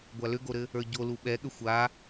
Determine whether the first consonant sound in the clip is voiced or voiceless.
voiced